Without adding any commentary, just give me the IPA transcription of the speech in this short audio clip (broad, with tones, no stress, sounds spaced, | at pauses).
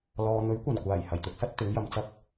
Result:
l ɔː˨ n̪ ɵ˨˥ ɥ kʷ ɐ˨˩ n kʷ aː˨˩ j h ɐ˨˩ j t̪ ʊ˨˥ k̚ s ɐ˥ t̚ t̪ ɪ˨˥ ŋ j ɐ˨ m t͡s ɐ˥ k̚